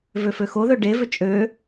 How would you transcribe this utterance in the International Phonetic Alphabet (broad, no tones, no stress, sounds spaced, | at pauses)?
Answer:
v ø f ø x o ð ø ɖ e v ʏ t͡ʃʼ ø